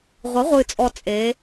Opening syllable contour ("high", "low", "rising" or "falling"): rising